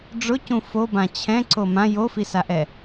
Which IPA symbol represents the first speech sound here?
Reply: ɖ͡ʐ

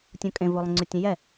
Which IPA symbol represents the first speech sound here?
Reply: tʲ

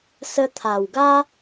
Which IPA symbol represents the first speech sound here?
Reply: s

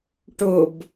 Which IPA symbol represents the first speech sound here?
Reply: ʈ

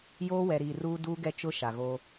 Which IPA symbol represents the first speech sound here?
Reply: j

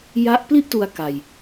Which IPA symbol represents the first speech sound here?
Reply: j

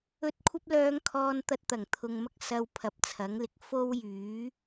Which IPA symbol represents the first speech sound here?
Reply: ɵ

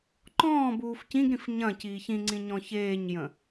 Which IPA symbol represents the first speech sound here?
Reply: ǃ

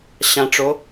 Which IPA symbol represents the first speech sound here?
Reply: ɕ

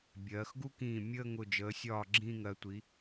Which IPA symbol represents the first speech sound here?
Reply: bʲ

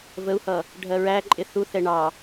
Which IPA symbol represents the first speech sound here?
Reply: v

